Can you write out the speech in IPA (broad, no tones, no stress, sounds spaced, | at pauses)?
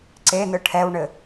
ǀ e n ɯ ʈʰ ɛ w ɳ ɘ